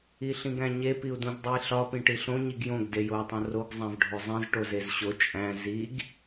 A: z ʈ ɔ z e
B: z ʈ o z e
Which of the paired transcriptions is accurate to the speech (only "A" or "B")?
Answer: B